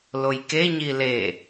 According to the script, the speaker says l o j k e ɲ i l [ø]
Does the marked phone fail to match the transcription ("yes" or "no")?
yes